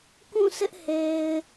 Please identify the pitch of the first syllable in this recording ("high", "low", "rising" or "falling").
falling